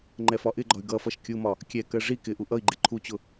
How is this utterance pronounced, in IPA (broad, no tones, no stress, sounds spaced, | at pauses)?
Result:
ŋ͡ǃ ɛ f ɒ ʔ ɪ ɡ͡ǃ ɒ y̯ ɡ ʌ f ʌ ʃ kʲ u m ɒ | kʲ ɛ k ɜ ʐ i k ɪ ʔ u ʔ ʌ i̯ ɡ͡ǃ ɪ ǃʰ u t͡ɕ ʊ